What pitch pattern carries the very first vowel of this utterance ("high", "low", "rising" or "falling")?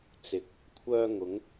rising